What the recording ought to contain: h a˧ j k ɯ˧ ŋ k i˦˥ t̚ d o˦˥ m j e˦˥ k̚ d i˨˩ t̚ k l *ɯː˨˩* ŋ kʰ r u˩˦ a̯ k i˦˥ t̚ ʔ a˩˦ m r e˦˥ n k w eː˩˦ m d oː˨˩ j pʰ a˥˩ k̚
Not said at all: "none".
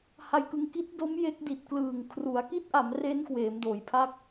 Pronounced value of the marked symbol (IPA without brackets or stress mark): ɯː˨˩